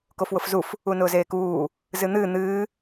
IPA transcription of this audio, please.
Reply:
k o f w ʊ f z u f | u n ʊː z eː k uː | z ɨ n̪ ɨː n̪ ɨː

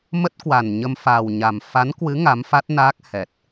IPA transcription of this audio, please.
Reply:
m ə˦˥ t̚ k w a˨˩ n ɲ ə˧ m f a˨˩ w ɲ a˨˩ m f a˨˦ n k w ɨ˨˦ ŋ a˨˦ m f a˦˥ t̚ n aː˦˥ k̚ h ɛ˨˩ t̚

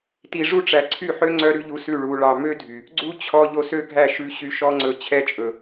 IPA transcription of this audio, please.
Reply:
t i˨ ʐ u˦ ʈ͡ʂ æ˨ ǀʰ y˦˨ ħ ø˦ ŋ͡ǀ œ˦ ɾ ʉ˦ ʎ u˧ s ʉ˦˨ ɭ u˧ ɭ ɑ˨ m ø˦ dʱ y˨ | ɡ͡ǀ u˦ t͡ɕʰ ɔ˧ ʎ o˧ s ø˦ ɡʱ æ˦˨ ʃ ʉ˧ ɕ y˧ ʃ ɔ˧ ŋ͡ǀ ɵ˧ t͡ɕʰ ɛ˧ t͡ʃʼ ɵ˨

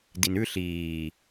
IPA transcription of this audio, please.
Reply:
d i n ʉ ɬ iː

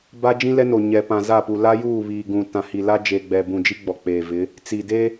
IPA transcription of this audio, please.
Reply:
b a˦ d͡ʒ ĩ˦ l ɛ˦ n o˨ ɲ ɛ˨ p ã˨ z a˦˨ p u˨ l a˦ j uː˦˨ β iː˨ ɡ ũ˨ t ã˨ h i˨ l a˦ d͡ʒ eː˨ ɡ͡b ɛ˨ b ũ˨ d͡ʒ i˦ ɡ͡b ɔ˨ k͡p eː˨ v ɪ˨˦ | t͡s i˨ d e˦

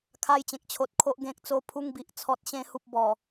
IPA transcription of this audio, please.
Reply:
kʰ a˧ j t͡ɕ ẽ˨ k̚ t͡ɕʰ o˨ t̚ kʰ o˨ ʔ ɡ ẽ˨ k̚ t͡s o˧ pʰ u˧ ŋ b i˨ ʔ t͡sʰ ɔ˨ t̚ ɕ ẽ˧ h u˨ p̚ b ɔ˨˩

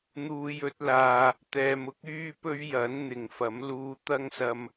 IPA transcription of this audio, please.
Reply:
n̪ uː˨ j ɵ˧ t̚ l aː˨ | t̪ ɛː˨ m ʊ˥ k̚ yː˥ p ɵ˥ ɥ j ɐ˨˥ n n̪ ɪ˨ ŋ f ɐ˨˥ m l uː˧ t̪ ɐ˥ ŋ s ɐ˧ m

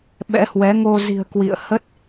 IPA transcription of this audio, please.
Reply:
ɓ ɛ̰˧˥ h w ɛ˨˦ ŋ o˧ z i̤˨˩ ə̯ k w ḭ˧˨ ə̯ h ə˦˥ t̚

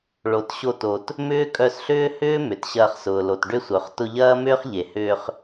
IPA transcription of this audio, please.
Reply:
ɭ o˨ t ɕ o˧ t o˨ t | m ʏː˦ kʼ œ˧ s ɬ ʏː˦ h ʏː˦ m ʏ˨ t ɕ ɐː˧ χ s ʊː˨ l o˨ t ɖ ʏ˦ sʷ œ˨ χ t ʊ˧ ʎ ɐː˦ m ʏː˦ χ ʎ e˨ h ʏː˧ χ

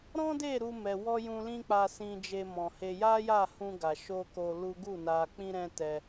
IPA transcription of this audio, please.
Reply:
ɾ ɔ̃˦ d e˦˨ ɾ u˧ m ɛ˨ w ɔ˧ j ũ˧ l ĩ˦ k͡p a˧ s ĩ˧ d͡ʒ e˧ m ɔ̃˨ h e˧ j a˦ j a˦˨ h ũ˧ ɡ a˨ ʃ o˧ k o˧ l u˦ ɡ u˦˨ n a˧ k͡p ĩ˦ ɾ ɛ̃˦ t ɛ˧

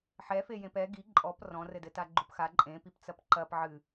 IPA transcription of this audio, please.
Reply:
ħ ɛ f e j ẽ p ɛ ɡ i ǃʼ ɔ p r ɔ̃ r ɘ d ɘ t a ɡ͡ǃ u p x a ǃʼ ẽ p i p t͡s ɐ p ǃ ɐ p ʕ ɨ

